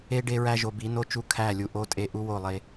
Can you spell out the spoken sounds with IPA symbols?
e˦ ɖe˦ɹæ˦ ʒo˨bi˨˦no˦t͡ʃu˦ kʰæ˦˨lʲu˨ ʔo˦tʼe˦ ʔu˦wo˦˨ lˠe˦

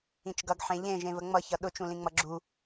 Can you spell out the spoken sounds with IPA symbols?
ĩt͡ʃɡʌɡħẽ ʎẽ ʒẽvəŋ͡mʌçʌ ɗʊt͡ʃũlĩŋ͡mʌ ɡ͡ǁu

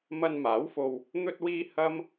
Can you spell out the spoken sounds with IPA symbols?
mɐ˧nmaː˨˥wfo˧w | n̪ɵ˧t̚wiː˧ hɐ˥m

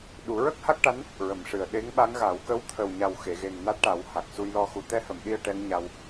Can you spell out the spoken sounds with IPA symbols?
ɗu˨˩˦ ɹə˦˥k̚ha˦˥k̚ʈa˧˥n | ɹə˨˩mʂɨ˨˩ə̯ ɗe˧˥ŋɓa˧˥ŋɣa˨˩˦w kə˧˥wt̪ʰə˨˩wɲa˨˩w xe˨˩˨ɣe˨˩ŋ na˦˥t̚ʈa˨˩˦wha˨˩k̚ su˧jlɔ˧xu˨˩˦ t̪ɛ˧hə˨˩˨mɗi˧ə̯ ʈɛ˧˥ŋɲa˧w

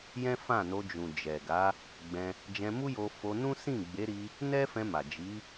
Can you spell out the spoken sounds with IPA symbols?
jɛ̃˦fã˦˨no˧ d͡ʒũ˨d͡ʒɛ˨ ɡa˨˦ | ɡ͡bɛ̃˧ | d͡ʒɛ̃˧mu˦jo˧ fo˧nũ˦ sĩ˦˨ɡ͡be˨˦ɾi˧ | nɛ˦fɛ̃˧ma˨ d͡ʒi˨˦

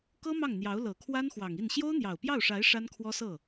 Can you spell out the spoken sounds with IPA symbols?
kɤ˥ mɑ˥˩ŋn̪jɑ˧˥ʊ̯ lɤ˨˩kʰwa˥nxwɑ˨˩ŋ i˥˩n ɕjo˥ʊ̯n̪jɑ˨˩ʊ̯pjɑ˥˩ʊ̯ʂa˧˥ɪ̯ ʂa˥nkʰwɔ˥sɤ˥˩

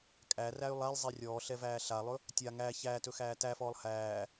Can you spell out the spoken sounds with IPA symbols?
kʼæræy̯ lˠælˠzˤe rʲɔːɬɛvæː ɬalˠɵ | tʲa ŋæ çæːtɵxæː tæfɔːlˠ hæː

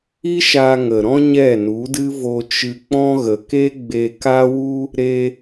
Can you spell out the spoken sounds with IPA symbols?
i˦ʃa˧ ŋə˨ɾɔ̃˦ ɲɛ˦˨nu˨˦dɨ˦ vo˧t͡ʃɨ˧k͡pɔ̃˦ ɣə˨ke˦ɡ͡be˧ ka˦wu˦ | ɾe˧

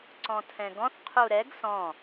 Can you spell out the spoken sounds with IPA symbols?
ǀɔ̃tʰɛ̃ɡɔ̃θ qʰuɾɛɡ sɔ̃

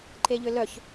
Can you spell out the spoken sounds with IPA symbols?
ǃeʎʏlœç

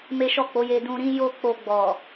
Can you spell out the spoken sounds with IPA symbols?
me˦ʃɔ˦˨k͡po˨˦je˧ dũ˧ɾĩ˦ jo˦ k͡po˧ɡ͡bɔ˨

